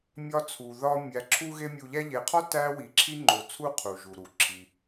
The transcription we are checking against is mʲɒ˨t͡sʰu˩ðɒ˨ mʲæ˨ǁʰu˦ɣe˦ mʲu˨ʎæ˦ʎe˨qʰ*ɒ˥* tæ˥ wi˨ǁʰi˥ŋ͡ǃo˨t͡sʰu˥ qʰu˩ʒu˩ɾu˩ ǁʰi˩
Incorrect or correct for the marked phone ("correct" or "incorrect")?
correct